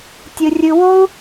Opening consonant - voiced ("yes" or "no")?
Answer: no